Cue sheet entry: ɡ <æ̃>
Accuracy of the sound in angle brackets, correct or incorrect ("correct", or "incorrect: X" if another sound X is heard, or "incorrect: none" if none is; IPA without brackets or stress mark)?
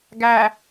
incorrect: æ